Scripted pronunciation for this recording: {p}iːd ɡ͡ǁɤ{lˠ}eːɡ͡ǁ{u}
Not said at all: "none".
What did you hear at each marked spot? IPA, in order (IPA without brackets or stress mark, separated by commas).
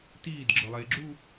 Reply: t, lˠ, u